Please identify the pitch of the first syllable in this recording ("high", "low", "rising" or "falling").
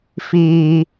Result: low